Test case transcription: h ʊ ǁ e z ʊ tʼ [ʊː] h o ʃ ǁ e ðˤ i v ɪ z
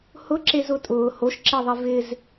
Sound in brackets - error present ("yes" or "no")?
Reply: no